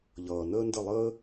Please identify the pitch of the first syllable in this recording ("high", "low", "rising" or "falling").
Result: low